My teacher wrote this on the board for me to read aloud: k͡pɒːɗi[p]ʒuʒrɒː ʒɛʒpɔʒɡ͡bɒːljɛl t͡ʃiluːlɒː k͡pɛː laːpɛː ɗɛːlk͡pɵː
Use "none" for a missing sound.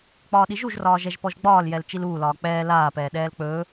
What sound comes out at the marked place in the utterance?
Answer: none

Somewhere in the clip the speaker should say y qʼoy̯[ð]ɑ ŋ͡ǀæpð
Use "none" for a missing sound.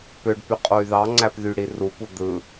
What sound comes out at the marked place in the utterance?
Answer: ð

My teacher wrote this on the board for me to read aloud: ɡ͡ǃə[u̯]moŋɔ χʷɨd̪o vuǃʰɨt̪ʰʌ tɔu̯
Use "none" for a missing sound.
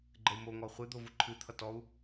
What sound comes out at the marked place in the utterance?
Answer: u̯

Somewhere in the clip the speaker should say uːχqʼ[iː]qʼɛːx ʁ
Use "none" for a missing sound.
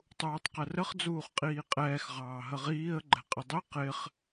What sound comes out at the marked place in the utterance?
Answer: iː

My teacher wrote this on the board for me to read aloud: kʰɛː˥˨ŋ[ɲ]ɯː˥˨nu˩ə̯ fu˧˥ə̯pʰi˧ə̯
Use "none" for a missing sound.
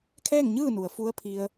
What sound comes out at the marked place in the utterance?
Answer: ɲ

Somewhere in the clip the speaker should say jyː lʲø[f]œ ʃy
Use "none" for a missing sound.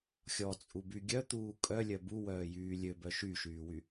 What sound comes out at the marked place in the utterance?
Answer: b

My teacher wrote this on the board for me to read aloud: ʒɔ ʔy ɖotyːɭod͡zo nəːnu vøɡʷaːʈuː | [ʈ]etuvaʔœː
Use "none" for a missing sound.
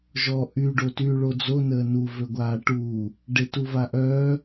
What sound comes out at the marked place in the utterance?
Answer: ɖ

